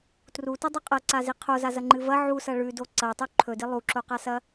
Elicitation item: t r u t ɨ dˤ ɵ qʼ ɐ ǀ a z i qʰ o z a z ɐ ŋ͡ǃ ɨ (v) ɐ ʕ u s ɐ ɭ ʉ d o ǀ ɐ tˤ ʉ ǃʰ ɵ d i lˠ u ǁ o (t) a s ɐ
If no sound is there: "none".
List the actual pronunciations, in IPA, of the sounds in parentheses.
v, q

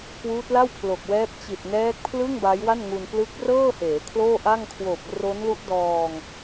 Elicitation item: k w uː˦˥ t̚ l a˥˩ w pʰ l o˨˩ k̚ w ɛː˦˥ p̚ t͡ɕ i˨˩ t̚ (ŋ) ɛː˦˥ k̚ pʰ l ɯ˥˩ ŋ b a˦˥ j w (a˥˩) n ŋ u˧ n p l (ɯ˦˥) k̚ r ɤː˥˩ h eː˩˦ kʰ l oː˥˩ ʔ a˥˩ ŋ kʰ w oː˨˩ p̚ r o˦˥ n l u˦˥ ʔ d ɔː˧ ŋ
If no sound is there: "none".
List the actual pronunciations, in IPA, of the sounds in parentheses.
n, a˥˩, ɯ˦˥

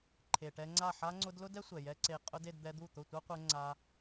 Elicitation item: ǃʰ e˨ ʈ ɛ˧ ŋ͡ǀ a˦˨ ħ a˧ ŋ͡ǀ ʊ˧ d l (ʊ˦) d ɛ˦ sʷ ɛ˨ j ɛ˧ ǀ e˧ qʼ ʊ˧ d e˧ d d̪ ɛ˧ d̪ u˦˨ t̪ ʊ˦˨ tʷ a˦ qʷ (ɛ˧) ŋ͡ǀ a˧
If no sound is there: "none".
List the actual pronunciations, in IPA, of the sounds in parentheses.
ʊ˦, ɛ˧

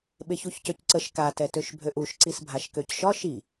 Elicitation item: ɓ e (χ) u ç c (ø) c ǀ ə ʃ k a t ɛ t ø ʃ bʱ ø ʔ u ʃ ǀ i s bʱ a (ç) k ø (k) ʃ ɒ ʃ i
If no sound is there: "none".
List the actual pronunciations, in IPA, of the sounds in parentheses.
ç, ø, ʃ, c

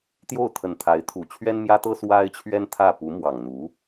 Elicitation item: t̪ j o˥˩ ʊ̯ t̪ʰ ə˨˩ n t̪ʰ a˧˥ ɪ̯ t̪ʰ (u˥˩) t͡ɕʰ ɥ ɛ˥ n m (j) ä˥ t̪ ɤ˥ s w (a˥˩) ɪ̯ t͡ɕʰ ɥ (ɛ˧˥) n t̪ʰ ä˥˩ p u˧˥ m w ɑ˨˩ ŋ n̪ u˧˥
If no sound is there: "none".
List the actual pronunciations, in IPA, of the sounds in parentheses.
u˨˩, j, a˥, ɛ˥

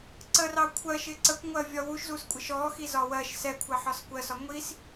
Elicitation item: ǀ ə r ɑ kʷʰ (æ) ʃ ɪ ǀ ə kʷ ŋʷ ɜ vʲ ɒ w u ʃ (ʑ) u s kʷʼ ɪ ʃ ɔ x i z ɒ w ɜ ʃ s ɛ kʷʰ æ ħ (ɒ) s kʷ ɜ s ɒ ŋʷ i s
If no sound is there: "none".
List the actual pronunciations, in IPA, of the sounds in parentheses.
ɜ, z, ɒ

